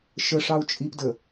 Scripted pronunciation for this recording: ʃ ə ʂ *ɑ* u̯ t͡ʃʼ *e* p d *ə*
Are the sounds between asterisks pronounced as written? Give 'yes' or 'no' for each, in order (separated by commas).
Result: yes, no, yes